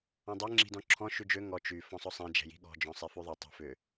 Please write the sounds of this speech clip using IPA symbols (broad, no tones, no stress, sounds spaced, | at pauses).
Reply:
ɔ̃ dˤ ɛ ŋ͡ǁ i̤ d ɔ̃ ǁʰ ɔ̃ ʃ y d͡ʒ ø ŋ ɔ t͡ʃ y f ɔ̃ sˤ ʊ sˤ ɛ̃ d͡ʒ ɛ̤ j i̤ ɠ ɔ̤ d͡ʒ ɔ̃ sˤ ɛ f y ðˤ ʏ tˤ i̤ f ʏ